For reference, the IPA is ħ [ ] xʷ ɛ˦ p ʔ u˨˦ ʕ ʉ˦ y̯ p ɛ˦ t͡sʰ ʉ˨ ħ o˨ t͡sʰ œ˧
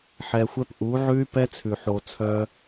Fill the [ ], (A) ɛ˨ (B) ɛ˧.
B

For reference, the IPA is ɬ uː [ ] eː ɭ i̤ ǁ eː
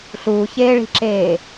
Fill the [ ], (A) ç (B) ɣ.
A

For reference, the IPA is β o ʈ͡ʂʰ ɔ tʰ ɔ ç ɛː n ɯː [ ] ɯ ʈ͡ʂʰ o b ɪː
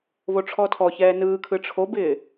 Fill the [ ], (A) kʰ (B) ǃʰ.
A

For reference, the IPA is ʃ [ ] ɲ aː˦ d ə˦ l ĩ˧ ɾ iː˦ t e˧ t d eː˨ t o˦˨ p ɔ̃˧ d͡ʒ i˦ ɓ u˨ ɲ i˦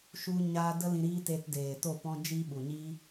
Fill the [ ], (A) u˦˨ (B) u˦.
B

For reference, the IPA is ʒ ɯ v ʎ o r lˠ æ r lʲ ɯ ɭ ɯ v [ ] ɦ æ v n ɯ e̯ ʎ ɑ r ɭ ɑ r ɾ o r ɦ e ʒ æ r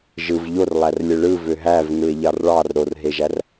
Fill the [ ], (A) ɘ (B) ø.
B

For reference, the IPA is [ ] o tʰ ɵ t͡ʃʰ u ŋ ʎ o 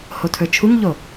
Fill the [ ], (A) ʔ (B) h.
B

